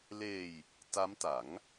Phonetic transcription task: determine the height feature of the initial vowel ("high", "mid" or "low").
mid